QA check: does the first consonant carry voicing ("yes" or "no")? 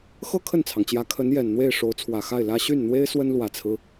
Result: no